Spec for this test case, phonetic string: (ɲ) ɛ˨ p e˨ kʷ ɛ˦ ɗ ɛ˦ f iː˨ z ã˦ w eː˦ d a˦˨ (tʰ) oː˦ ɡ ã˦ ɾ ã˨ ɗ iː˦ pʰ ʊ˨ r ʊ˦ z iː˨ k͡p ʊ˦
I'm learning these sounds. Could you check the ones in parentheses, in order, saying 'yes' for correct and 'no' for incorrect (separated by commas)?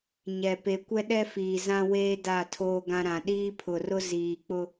yes, yes